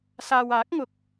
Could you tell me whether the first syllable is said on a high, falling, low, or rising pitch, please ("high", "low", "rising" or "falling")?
low